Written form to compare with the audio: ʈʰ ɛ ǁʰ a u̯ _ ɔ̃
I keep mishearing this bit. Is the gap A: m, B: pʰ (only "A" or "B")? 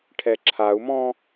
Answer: A